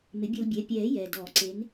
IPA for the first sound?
m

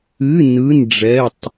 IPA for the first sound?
ɨ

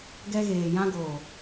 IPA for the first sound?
ɡ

